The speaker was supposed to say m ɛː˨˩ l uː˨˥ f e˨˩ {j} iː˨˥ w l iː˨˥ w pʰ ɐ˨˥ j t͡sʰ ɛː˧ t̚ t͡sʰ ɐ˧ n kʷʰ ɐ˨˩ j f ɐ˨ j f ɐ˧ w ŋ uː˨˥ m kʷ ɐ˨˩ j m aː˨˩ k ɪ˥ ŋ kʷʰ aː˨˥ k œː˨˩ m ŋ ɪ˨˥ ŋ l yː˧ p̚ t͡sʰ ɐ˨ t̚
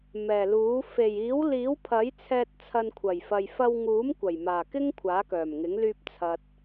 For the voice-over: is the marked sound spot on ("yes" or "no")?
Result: yes